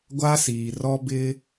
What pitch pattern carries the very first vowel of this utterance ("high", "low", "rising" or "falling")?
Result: high